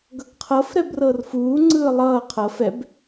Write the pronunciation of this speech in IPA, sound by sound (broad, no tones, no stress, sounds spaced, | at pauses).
ɡ ʌ ɡ qʰ ɤ f ɾ ɛ b r ɤ r f uː ŋ͡ǀ ɯː lˠ ʌː qʰ ɤ f ɛ b